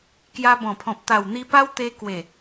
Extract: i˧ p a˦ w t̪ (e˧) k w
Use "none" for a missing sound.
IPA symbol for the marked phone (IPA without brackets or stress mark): e˧